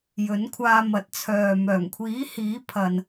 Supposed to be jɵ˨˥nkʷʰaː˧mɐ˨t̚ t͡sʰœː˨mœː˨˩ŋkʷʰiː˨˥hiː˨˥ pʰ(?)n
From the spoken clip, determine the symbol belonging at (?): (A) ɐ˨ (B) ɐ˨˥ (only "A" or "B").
A